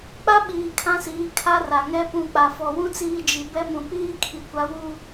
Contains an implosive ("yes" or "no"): yes